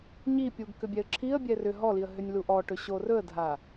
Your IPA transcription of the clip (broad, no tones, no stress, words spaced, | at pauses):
ɲipʲuɡ kʏbʲɛə̯ǁʰiə̯bʲɛ rʏ ɦɔliə̯ ɦʏnʲluʔɔʈɵ ɕorɵə̯dʱa